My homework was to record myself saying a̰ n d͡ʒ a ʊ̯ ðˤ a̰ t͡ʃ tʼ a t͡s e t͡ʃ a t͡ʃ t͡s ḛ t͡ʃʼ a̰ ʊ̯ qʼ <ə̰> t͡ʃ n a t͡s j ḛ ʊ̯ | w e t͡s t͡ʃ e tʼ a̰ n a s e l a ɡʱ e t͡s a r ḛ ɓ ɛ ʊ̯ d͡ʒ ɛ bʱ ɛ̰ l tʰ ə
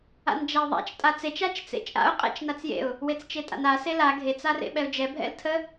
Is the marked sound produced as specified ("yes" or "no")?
no